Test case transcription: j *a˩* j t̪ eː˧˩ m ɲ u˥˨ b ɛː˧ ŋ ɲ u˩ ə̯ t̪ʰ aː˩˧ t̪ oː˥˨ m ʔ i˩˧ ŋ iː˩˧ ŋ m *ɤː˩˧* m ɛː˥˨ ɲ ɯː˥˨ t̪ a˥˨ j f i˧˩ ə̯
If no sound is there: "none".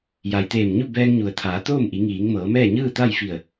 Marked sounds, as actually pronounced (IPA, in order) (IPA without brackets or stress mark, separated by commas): a˩, ɤː˩˧